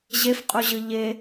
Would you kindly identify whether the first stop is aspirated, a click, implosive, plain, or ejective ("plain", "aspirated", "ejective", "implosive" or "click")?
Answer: ejective